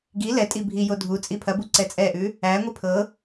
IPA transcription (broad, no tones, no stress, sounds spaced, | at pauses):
ɡ i l ɛ tʼ i bʱ i j o dʱ u t͡sʼ i pʰ ɐ b u ǀ ɛ t͡sʼ ɛ ʔ ʉ | æ ŋʷ i pʰ ɤ